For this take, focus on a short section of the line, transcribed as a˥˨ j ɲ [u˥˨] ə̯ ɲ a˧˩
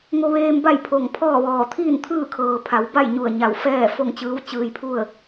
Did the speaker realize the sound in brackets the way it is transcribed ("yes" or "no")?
no